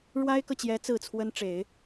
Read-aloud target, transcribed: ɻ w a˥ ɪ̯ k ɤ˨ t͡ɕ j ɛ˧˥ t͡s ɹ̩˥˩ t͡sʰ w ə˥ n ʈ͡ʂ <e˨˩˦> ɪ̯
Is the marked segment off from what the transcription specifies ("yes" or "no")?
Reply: no